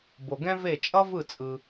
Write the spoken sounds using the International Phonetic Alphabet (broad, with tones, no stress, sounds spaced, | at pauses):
b o˩ ɡ ɛ̃˦ v e˧˩ t͡ʃʼ ʌ˦ v ɯ˧˩ t͡sʼ ɯ˩